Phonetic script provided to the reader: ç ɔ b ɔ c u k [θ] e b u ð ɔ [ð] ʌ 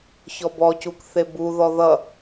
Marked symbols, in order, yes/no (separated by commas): yes, yes